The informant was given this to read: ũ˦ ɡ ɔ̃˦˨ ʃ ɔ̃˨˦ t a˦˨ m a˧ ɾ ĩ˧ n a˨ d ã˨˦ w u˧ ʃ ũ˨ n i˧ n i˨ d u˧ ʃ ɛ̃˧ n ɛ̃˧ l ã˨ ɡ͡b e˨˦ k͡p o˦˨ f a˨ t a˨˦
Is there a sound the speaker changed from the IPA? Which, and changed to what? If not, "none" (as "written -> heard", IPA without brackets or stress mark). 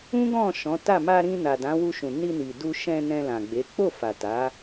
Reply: none